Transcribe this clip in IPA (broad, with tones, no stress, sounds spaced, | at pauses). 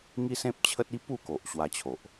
ŋ i˦ s ẽ˦ p̚ t͡ɕʰ ə˦ t̚ i˦ p u˥˧ k o˨ ʔ ɕ w a˧ t͡ɕʰ o˨ ʔ